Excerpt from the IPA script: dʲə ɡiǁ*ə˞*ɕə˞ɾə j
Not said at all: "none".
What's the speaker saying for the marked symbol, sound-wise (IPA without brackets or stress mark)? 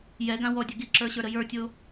ə˞